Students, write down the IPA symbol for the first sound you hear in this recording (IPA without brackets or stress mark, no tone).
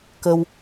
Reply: k